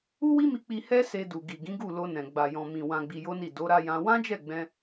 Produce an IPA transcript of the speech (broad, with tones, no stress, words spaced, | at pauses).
u˦wi˦mi˧k͡pi˧ hɛ˦ se˧du˨ ɡi˨ɡĩ˨˦ɡu˦˨lo˧ nɛ̃˨ ɡ͡ba˨jɔ̃˨ mĩ˨ wã˧ɡ͡bi˧jo˦ni˦˨ do˨˦ɾa˧jã˧ wã˦d͡ʒɛ˦˨ɡ͡bɛ̃˧